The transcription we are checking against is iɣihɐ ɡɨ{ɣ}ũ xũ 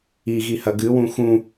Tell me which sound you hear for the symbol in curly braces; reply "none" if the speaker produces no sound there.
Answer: w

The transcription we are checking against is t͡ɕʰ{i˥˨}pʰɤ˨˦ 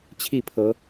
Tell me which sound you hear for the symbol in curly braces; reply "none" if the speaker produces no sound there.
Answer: i˥˨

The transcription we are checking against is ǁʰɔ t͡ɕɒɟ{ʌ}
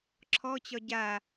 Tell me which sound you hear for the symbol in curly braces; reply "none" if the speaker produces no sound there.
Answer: a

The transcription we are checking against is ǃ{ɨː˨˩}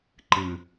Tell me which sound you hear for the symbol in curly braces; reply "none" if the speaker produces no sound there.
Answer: ɨː˨˩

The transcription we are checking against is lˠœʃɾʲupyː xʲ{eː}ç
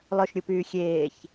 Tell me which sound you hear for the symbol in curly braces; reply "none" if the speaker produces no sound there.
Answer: eː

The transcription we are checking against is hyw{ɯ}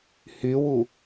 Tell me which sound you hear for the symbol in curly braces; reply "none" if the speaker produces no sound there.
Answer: u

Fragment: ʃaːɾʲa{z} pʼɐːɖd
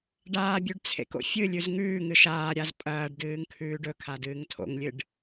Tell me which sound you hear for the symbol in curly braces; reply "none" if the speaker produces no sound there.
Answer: z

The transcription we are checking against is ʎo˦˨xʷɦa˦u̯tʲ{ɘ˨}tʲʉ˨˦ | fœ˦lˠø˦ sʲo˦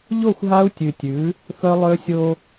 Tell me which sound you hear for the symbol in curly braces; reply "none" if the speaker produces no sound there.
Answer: ʉ˨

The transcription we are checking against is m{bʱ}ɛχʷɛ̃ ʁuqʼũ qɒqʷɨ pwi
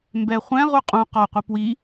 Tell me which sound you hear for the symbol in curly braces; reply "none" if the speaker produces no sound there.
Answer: b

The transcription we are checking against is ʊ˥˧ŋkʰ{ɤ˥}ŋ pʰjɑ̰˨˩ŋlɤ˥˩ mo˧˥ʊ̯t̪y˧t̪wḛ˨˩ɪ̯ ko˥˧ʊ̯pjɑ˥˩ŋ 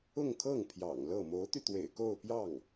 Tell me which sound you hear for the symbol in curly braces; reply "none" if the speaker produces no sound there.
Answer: ɤ˥˩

